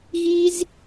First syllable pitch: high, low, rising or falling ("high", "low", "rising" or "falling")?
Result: high